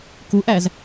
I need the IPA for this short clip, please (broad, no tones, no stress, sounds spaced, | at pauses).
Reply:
k u ʔ æ z